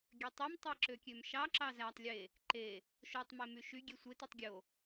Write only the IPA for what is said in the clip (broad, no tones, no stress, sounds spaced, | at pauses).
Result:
ɡʲ ø tˤ ø m tˤ e ǁ ø kʲ ø m ʃ ɑ ǁ ɑ z æ tˤ lʲ e | ǃ e | ʃ o tˤ m e m y ʃ y ɡʲ e sʷ e t e tˤ ɡʲ o